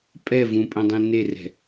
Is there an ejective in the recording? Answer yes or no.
yes